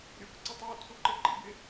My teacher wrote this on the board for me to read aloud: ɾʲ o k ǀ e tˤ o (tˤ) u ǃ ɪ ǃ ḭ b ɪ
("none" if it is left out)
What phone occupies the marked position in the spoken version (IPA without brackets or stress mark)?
tʰ